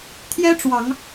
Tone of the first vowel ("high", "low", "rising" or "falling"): high